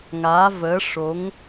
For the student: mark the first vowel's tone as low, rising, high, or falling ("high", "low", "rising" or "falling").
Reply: rising